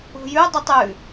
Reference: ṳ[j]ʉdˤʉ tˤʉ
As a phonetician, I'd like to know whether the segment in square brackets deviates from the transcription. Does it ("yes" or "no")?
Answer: no